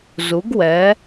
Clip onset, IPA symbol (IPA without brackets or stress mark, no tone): z